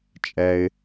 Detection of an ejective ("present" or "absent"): present